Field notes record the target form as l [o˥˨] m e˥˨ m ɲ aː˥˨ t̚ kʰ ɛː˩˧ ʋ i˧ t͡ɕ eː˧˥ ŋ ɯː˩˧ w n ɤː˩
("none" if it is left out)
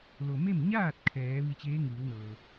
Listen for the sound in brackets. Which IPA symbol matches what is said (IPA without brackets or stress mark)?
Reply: o˩